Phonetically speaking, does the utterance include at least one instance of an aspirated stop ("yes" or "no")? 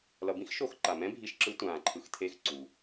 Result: yes